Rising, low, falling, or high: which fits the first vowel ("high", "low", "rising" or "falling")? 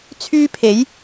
high